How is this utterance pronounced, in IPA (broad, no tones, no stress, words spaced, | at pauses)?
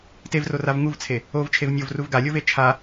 tevrorav ŋuvt͡sʰe | ovt͡ʃʰev nʲovruv ɡalʲove t͡ʃʰa